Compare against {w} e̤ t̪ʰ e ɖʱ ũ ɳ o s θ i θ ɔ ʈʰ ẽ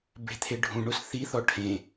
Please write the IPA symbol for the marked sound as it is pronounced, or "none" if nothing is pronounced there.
b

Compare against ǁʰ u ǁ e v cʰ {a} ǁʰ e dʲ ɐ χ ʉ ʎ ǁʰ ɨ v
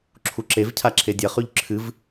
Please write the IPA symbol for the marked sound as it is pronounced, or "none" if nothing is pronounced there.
a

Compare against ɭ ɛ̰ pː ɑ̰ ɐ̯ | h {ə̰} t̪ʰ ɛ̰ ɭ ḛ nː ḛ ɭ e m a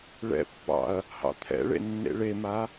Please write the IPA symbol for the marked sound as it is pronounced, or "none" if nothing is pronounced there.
ɑ̰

